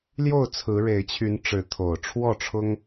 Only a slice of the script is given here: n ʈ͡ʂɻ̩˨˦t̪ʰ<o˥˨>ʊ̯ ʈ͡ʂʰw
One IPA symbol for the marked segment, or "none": o˨˩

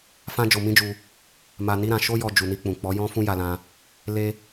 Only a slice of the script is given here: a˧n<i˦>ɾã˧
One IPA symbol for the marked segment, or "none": i˦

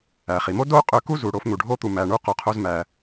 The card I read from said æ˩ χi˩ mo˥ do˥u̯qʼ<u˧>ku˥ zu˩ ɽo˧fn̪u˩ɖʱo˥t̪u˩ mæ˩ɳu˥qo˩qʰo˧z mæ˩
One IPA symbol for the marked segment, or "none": ø˧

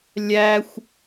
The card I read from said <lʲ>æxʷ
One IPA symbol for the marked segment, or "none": lʲ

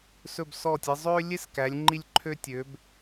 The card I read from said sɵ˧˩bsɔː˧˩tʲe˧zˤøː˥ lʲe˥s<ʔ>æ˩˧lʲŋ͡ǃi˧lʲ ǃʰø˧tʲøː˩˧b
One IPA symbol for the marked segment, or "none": k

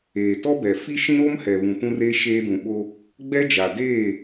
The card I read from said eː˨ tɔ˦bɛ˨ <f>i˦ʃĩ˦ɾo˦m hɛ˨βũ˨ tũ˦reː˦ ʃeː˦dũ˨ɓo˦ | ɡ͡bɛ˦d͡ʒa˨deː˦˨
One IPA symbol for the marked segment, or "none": f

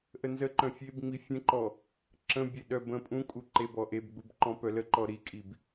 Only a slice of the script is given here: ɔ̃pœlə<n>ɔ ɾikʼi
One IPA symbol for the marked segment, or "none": ǃ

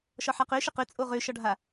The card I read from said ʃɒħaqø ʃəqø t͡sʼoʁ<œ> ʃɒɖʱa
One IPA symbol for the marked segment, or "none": ø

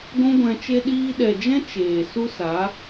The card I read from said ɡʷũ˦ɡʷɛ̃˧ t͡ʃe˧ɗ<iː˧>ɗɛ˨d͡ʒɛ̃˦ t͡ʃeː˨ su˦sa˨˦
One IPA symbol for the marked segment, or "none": iː˧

